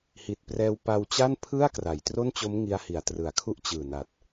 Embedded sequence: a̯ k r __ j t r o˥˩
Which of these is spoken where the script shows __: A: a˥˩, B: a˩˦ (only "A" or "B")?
B